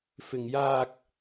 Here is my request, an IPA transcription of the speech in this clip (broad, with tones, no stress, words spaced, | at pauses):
fɪ˨ŋjaː˧k̚